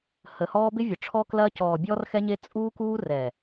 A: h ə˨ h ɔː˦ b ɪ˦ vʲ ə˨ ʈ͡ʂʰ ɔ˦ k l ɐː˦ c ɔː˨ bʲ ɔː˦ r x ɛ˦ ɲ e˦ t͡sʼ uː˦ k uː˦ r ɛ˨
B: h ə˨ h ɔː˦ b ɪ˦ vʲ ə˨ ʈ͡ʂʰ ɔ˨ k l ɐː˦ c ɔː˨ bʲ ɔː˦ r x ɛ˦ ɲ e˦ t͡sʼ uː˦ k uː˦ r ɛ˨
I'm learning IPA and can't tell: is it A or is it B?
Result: A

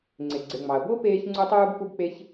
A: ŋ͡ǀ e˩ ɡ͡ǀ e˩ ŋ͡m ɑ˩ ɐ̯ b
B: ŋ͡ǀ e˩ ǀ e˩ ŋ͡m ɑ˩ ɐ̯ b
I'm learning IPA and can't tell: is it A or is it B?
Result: A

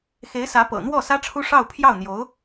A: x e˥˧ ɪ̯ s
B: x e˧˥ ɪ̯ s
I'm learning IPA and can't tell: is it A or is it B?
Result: B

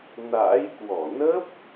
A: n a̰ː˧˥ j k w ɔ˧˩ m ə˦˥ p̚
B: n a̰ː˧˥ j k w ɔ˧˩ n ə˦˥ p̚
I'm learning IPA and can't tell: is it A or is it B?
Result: B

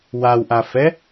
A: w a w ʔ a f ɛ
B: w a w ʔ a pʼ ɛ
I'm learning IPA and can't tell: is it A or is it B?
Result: A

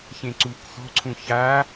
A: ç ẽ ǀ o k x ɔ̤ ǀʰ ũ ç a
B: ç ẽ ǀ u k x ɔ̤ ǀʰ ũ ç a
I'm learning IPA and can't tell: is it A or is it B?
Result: B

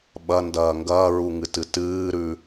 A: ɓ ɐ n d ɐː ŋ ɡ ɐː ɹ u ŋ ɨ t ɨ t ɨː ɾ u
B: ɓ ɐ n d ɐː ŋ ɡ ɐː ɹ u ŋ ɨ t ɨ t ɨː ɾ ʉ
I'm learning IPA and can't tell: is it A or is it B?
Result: B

